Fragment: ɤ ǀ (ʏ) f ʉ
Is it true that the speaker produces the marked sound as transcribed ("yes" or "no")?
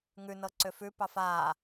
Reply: yes